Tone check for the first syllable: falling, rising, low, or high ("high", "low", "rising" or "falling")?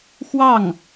falling